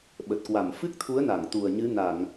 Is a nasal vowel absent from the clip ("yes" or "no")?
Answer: yes